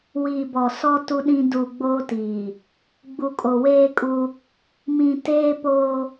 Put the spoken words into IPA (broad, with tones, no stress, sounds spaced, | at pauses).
w iː˨ b ɔ˨ s ɔ˦ t u˦ ɗ ĩ˦ d u˨ ɡ͡b oː˦ t iː˨ | ɡ͡b u˨ kʼ o˨ w eː˦ kʼ u˦ | m ĩ˨ t eː˦ p oː˦